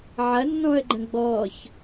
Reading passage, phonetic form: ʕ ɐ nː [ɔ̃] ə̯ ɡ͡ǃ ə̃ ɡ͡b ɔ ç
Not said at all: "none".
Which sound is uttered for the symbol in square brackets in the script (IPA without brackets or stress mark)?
ɔ̃